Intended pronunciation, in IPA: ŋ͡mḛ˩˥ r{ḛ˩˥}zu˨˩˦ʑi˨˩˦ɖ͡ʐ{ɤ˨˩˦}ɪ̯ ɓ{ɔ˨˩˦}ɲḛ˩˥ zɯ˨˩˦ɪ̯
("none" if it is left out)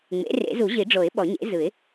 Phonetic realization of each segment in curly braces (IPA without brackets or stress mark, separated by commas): ḛ˨˩˦, o˨˩˦, ɔ˨˩˦